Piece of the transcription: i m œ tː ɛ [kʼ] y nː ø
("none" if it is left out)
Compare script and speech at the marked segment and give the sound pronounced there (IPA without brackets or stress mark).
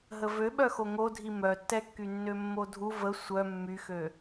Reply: kː